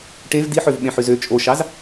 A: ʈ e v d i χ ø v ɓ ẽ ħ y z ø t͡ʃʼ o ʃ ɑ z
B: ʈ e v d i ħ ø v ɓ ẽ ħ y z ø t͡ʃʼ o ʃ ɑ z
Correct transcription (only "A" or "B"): B